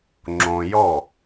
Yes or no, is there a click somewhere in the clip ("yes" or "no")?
yes